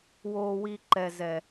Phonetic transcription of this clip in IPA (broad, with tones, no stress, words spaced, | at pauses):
woː˨wiː˨ ǃɛ˨zɛ˨